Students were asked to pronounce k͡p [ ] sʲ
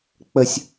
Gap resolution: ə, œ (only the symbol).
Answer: ə